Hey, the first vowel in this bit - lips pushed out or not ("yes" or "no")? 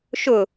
yes